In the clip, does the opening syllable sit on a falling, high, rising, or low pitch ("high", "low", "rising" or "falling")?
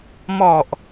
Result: low